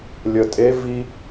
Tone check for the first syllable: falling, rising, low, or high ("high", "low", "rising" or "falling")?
low